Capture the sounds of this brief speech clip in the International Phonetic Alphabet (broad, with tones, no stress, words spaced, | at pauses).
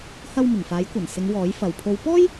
hɐ˧wmɪ˨˩ŋ faː˨˥jkʷɐ˨˩nsɪ˨˧ŋ wɔː˨˥jfɐ˨w pʰo˨˧wpɔː˥j